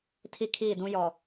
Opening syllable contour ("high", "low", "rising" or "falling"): high